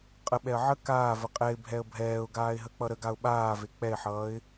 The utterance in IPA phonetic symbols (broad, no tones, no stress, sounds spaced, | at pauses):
qʼ ə ɓ ɛ ə̯ ʕ ə k aː v ə qʼ ɛ ɪ̯ bʱ ɛ ə̯ bʱ ɛː ʊ̯ ɡ aː ɪ̯ ɦ ə k͡p ʌ ɾ ə ɡ a ʊ̯ ɓ aː v e k͡p ɛ ɪ̯ ħ ʌː ɪ̯